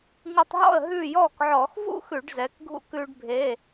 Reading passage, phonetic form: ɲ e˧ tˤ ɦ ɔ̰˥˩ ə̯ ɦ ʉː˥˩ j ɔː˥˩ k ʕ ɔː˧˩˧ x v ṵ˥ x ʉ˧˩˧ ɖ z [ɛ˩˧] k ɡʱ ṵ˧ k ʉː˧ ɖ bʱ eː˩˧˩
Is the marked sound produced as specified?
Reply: yes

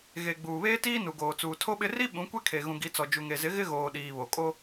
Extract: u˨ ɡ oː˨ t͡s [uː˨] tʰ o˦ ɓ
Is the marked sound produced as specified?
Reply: yes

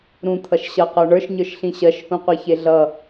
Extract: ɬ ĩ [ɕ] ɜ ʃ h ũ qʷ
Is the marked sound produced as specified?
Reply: yes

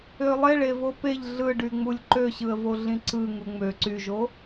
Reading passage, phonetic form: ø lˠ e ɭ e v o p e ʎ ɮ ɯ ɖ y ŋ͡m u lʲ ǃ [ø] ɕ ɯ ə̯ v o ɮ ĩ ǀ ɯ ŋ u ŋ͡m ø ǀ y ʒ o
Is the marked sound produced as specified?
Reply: yes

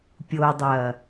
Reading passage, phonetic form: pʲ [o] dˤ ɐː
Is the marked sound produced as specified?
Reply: yes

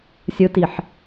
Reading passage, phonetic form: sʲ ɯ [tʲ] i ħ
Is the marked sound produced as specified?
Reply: no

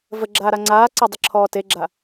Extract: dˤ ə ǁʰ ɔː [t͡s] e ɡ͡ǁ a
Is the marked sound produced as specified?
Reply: no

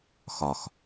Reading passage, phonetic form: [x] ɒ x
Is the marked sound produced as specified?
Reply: yes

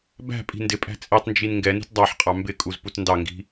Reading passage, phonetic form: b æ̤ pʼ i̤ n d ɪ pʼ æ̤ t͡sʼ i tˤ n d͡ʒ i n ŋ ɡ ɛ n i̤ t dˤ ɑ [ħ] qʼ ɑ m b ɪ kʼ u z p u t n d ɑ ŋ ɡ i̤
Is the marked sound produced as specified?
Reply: yes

